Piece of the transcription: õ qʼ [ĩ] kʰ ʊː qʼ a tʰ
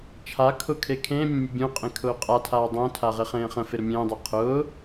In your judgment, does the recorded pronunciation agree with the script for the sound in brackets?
no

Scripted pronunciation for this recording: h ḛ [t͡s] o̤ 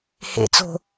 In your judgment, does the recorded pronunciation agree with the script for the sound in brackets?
yes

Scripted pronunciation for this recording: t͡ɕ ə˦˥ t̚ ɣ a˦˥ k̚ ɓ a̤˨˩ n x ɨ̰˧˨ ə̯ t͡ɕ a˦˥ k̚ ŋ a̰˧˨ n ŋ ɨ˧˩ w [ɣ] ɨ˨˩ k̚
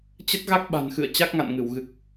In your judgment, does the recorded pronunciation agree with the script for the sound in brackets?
yes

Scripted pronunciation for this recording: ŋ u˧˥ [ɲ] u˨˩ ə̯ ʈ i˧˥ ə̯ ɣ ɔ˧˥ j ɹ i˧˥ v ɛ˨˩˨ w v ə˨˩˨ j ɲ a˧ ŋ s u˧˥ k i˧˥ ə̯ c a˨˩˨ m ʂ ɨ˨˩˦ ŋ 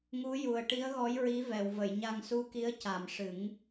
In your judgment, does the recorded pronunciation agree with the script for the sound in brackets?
no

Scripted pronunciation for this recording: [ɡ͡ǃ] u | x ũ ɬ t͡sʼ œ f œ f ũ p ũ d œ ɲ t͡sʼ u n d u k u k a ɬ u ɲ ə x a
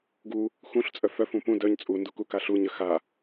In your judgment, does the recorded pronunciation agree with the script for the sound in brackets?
no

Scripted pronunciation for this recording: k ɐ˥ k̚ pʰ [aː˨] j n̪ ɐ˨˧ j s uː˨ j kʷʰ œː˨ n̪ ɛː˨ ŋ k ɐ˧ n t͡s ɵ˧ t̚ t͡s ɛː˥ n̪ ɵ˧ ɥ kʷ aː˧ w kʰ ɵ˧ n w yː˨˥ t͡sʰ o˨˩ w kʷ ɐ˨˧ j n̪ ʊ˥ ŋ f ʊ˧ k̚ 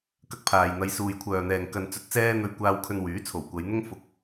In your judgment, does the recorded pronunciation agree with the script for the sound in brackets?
yes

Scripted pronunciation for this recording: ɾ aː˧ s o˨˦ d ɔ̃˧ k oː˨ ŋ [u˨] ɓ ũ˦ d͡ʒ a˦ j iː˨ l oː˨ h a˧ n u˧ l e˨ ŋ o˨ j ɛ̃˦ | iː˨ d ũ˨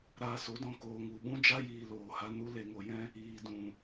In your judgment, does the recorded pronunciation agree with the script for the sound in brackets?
yes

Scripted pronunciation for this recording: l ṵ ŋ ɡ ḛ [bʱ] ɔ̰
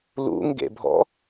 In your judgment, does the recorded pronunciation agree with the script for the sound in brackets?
yes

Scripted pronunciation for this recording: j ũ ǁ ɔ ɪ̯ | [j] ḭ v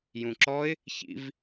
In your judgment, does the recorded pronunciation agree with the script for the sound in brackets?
no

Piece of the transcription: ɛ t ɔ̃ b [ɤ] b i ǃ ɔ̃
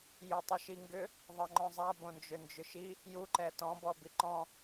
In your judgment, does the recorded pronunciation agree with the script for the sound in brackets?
no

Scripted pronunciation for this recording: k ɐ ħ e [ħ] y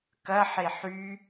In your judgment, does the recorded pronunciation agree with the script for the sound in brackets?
yes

